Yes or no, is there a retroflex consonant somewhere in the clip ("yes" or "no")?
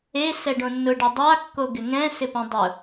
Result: yes